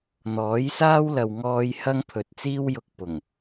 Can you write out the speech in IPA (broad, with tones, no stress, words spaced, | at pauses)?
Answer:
n̪ɔː˨˥jsaː˥w lɐ˨wŋɔː˧j hɐ˥ŋpʰɵ˨t̚t͡siː˥w jʊ˧k̚ pʊ˨˩ŋ